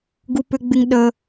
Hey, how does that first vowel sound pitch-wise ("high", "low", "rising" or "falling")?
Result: high